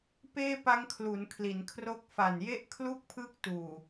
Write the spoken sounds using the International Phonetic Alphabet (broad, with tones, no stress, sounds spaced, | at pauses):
p eː˥˩ p a˦˥ ŋ kʰ l u˩˦ n kʰ l i˩˦ n kʰ r o˥˩ k̚ f a˨˩ n j e˥˩ ʔ kʰ l u˥˩ k̚ pʰ ɯː˥˩ k̚ t uː˨˩